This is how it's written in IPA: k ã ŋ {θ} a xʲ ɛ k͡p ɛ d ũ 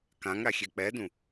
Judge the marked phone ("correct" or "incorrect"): incorrect